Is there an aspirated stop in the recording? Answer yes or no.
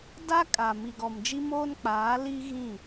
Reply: no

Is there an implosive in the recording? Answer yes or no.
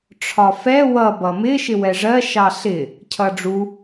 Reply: no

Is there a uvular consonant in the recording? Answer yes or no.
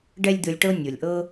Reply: no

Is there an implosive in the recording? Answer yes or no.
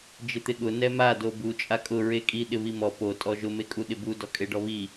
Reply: yes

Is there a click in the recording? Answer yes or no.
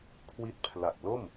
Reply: no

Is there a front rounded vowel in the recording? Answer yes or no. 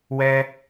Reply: no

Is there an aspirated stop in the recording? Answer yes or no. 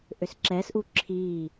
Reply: yes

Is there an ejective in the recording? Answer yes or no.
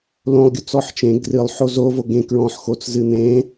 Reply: no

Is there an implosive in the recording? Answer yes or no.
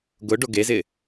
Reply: no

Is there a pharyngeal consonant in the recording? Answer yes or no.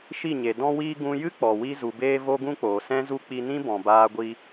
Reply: no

